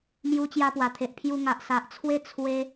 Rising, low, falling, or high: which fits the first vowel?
high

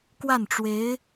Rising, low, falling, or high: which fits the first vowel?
falling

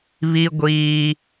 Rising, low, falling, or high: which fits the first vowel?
high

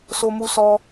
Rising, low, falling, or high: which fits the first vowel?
high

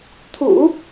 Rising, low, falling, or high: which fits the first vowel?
low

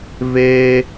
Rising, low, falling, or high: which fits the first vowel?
high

